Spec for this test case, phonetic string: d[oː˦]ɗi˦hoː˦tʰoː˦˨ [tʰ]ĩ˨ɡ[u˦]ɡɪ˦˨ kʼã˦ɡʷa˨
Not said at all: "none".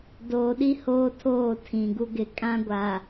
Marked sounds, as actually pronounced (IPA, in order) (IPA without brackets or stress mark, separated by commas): oː˨, tʰ, u˦